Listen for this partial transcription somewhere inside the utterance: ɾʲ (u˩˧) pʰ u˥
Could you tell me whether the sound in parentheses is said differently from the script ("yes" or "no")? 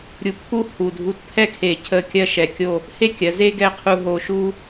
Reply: yes